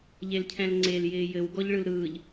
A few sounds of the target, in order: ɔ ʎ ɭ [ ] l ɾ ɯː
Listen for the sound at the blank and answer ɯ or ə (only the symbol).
ɯ